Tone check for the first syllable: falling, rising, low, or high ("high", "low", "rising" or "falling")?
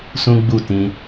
high